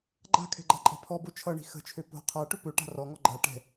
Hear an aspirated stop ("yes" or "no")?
yes